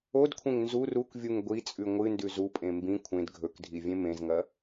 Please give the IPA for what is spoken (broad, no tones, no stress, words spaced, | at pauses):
odkʷʰẽŋ nzur ukvʲuŋ ɡʷit͡sʼʉ ŋʷɨndʉ zupʼẽ mbĩ kʷʰẽd ɡʱɵkdʱivʲẽ mẽzŋɐ